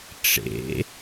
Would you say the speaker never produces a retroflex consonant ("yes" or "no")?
no